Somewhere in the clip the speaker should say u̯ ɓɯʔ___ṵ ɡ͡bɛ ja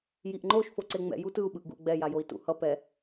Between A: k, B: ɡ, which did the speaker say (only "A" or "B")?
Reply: B